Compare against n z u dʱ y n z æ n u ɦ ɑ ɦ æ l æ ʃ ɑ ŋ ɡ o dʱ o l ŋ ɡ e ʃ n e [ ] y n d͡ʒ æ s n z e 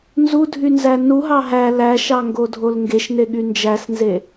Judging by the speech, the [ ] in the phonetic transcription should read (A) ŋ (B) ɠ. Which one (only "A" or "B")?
B